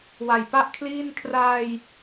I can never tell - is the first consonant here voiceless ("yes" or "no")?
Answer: no